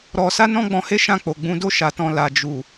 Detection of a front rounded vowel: absent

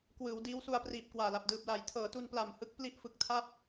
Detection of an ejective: absent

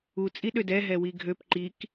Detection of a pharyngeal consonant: absent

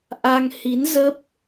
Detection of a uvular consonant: absent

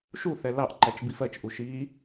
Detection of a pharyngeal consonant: absent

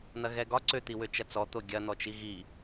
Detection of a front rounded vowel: present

